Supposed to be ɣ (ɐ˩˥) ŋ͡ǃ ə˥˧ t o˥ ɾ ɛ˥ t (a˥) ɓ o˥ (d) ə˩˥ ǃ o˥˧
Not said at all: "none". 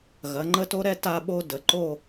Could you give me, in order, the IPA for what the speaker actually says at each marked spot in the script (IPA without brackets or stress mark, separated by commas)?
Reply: ɐ˩˥, a˥, d